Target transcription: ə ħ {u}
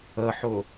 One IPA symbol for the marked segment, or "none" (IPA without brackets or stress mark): ʊ